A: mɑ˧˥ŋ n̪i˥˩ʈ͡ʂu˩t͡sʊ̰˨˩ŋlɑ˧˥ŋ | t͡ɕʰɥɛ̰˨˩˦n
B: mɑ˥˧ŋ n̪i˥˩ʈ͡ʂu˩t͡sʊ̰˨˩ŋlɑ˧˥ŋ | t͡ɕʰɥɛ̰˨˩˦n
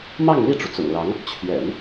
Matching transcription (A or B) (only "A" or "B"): B